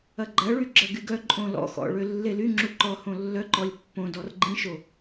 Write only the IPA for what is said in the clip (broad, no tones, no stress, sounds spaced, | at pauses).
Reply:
ɐ ɡ͡ǃ ɐ ɭ y ɡ͡ǁ ɐ ɡ y ɡ œ ǃʼ õ l ɔ̰ x ɔ̰ ɭ ø lː e l y ŋ͡ǁ u ǃ ɔ h õ lː œ ǃ ɔ lʲ pː õ d ɔ r ɡ͡ǃ ĩ ʃ o